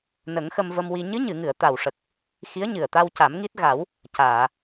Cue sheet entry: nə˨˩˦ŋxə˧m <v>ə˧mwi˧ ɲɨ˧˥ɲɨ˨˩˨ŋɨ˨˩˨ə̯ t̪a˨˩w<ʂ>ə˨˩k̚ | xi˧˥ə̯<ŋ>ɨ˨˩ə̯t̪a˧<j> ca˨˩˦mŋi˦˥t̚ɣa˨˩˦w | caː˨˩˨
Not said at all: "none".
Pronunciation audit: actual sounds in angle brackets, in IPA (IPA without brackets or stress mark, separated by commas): v, ʂ, ɲ, w